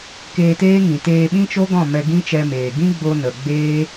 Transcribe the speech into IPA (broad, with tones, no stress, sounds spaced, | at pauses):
k eː˧ t eː˦ ŋ ĩ˨ t eː˧ ɓ ĩ˦ t͡ʃ o˦ ɡ ɔ̃˦˨ m ɛ˧ ɡ ĩ˦ t͡ʃ ɛ˧ m eː˨ ɡ ĩ˦ ɡ͡b o˧ n ə˨ ɡ͡b eː˦